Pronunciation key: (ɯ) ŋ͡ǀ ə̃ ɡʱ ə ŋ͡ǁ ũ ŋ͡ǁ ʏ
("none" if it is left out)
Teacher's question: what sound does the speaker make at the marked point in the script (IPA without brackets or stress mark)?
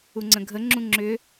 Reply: u